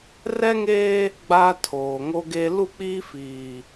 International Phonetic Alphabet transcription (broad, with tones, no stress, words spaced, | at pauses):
rɛ˦ŋeː˦ | ɡ͡ba˦tʰoː˨ŋo˦ɡe˦ lu˦˨k͡piː˦fiː˨